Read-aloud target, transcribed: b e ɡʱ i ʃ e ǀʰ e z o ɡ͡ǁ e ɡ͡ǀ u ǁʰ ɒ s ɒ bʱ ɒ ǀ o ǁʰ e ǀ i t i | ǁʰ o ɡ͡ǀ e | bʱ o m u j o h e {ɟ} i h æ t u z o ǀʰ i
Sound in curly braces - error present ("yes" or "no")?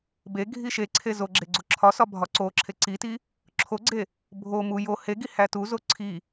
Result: yes